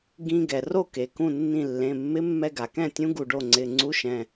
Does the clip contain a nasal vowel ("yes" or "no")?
yes